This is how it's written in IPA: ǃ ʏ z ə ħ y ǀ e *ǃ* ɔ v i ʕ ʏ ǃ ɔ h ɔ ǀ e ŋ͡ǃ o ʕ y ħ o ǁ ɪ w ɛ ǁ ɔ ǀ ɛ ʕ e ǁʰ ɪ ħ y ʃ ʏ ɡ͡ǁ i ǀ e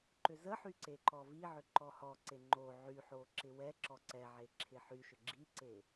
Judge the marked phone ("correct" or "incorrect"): correct